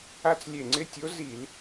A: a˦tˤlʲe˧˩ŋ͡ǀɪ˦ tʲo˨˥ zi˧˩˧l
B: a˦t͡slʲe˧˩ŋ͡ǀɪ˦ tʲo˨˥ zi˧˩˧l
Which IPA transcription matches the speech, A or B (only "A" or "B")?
B